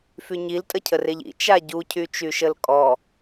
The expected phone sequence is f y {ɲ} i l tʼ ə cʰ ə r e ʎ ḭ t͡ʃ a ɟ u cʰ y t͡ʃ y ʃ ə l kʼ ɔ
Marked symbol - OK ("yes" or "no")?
yes